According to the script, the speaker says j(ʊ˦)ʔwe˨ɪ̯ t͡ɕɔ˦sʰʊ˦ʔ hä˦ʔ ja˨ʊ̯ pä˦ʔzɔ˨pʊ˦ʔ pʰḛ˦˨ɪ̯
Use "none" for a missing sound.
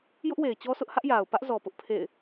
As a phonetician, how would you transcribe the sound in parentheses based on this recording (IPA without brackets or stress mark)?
ʊ˦